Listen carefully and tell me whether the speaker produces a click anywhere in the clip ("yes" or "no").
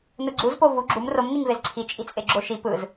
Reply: yes